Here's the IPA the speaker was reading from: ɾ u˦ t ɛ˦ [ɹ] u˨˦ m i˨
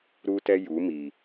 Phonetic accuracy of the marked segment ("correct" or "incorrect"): incorrect